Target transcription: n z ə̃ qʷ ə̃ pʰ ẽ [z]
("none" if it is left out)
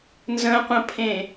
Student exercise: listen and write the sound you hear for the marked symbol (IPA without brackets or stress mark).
none